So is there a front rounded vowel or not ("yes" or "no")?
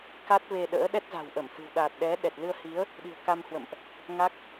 no